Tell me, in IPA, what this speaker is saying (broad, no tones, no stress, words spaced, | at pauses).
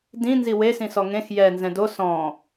dĩ nziwesĩsɔ ŋẽx jɛ nzɛ̃do sɔ̃